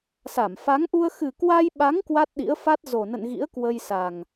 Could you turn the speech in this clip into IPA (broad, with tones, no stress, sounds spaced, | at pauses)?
s a˧˩ m f a˨˦ ŋ ʔ u˧ ə̯ x ɨ˨˩ k w a˧ j ɓ a˨˦ ŋ k w a˦˥ t̚ ɗ ḭ˧˥ ə̯ f a˦˥ t̚ z o˨˩ n ə̰˧˨ n ɣ ḭ˧˥ ə̯ k w ə˧ j s a˨˩ ŋ